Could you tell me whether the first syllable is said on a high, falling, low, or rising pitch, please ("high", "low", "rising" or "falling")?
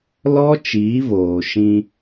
high